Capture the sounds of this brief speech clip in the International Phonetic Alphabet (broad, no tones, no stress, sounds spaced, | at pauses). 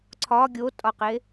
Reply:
ǀʰ ɒ ɡʲ o tʼ ɒ q e